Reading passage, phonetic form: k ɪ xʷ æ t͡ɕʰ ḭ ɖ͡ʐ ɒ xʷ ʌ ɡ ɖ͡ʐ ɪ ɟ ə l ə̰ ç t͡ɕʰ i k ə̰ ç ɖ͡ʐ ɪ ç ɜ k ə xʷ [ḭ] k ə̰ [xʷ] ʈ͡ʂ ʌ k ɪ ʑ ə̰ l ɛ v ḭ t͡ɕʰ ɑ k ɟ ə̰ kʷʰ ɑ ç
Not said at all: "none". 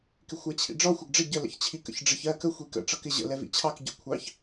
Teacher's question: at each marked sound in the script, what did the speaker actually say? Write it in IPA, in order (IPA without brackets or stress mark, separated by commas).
i, none